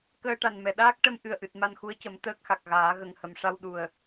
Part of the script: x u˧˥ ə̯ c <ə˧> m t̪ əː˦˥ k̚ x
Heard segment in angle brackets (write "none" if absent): ə˨˩˦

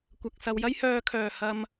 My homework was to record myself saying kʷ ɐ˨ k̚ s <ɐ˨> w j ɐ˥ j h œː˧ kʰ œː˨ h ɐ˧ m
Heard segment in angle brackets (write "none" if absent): ɐ˧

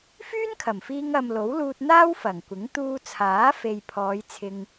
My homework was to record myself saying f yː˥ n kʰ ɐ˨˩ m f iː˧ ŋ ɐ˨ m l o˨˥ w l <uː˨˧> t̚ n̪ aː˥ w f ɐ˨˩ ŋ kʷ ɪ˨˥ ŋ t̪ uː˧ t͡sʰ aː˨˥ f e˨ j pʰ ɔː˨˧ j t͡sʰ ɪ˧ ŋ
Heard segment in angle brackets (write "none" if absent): uː˧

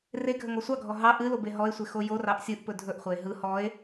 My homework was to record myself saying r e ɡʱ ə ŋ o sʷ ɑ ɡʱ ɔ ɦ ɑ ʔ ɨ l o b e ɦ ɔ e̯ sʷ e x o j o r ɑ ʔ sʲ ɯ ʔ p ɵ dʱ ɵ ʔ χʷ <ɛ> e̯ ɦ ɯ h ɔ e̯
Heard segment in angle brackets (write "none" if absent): ɛ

